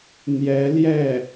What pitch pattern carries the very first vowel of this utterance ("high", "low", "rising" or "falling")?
rising